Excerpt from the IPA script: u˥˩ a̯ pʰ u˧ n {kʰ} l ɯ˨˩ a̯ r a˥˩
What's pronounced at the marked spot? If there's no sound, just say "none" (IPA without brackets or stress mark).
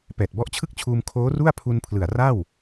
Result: pʰ